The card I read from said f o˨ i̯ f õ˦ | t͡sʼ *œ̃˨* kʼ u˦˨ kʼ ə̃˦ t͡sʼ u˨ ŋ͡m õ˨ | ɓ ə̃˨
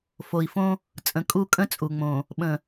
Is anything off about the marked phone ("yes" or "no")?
yes